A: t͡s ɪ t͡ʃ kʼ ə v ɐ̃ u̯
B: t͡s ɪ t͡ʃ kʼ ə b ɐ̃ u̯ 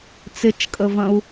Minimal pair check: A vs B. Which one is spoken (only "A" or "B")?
A